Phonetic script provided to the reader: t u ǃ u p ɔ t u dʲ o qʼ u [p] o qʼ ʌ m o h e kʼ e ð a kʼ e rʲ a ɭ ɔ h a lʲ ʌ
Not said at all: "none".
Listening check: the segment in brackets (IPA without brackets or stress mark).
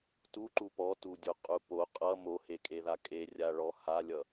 p